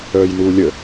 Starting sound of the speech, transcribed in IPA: œː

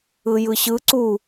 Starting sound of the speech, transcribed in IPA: ɯ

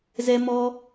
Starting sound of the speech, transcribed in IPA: z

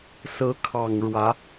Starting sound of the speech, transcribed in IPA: s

